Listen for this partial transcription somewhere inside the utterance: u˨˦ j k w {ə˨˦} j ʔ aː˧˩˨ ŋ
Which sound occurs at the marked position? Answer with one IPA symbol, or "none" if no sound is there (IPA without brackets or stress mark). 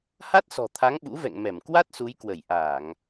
ə˧˩